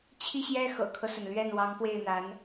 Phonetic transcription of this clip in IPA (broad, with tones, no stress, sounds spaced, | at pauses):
t͡ɕʰ i˥˩ ɕ j ɛ˥ x ɤ̰˨˩ kʰ ɤ˦ s ə˩ n l ɥ ɛ˥˩ n w ɑ˧˥ ŋ p w e˥˩ ɪ̯ n̪ a˧˥ n